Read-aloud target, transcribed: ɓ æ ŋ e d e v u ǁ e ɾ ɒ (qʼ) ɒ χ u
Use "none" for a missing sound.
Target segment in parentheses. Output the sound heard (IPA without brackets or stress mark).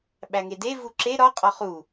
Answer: qʼ